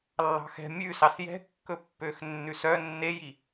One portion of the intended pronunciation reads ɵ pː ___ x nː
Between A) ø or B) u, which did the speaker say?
A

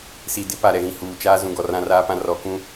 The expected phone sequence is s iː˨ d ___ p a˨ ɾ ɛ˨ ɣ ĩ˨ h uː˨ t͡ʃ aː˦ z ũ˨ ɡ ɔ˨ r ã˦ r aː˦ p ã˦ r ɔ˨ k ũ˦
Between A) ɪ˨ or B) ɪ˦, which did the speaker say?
B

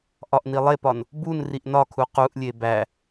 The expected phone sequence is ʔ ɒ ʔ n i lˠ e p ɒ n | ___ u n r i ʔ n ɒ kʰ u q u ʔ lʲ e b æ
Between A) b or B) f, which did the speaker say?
A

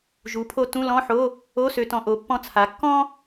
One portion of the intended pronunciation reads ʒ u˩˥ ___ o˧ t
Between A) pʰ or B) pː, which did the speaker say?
A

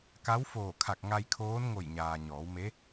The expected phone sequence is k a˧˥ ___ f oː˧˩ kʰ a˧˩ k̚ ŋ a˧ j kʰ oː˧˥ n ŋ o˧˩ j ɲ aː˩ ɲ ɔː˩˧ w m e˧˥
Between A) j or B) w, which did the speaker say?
B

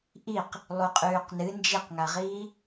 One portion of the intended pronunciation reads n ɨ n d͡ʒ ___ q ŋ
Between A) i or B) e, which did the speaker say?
A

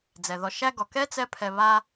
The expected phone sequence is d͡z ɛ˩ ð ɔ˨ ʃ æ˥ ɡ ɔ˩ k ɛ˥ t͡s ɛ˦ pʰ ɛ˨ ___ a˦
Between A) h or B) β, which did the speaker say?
B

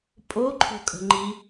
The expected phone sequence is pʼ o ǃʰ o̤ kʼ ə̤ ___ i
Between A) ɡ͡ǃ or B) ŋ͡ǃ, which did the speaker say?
B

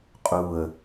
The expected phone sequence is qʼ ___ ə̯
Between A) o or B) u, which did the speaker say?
B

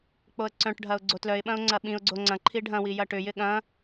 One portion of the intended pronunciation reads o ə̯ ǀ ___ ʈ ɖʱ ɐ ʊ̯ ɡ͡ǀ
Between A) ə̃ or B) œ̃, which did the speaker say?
B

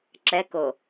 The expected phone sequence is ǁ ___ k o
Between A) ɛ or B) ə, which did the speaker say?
A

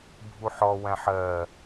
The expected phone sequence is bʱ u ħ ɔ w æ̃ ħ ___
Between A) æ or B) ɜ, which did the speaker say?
B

